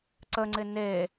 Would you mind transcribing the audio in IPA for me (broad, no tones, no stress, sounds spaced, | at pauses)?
ǀ ə ŋ͡ǀ ɪ n e